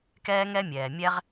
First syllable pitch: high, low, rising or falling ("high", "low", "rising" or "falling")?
high